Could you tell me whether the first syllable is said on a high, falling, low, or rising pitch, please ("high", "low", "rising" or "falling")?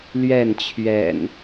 falling